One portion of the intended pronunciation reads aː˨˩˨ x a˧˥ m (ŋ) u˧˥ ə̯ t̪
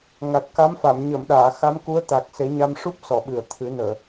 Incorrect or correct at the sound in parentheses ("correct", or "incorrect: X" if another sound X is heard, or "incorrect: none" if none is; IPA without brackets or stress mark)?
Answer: incorrect: k